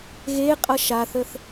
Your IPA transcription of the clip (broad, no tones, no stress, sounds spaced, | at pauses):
ɣ e qʼ ʌ ʃ a θ ə θ